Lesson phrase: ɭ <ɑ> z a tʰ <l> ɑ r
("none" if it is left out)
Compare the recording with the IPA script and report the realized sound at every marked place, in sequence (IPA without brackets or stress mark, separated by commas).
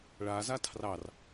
a, r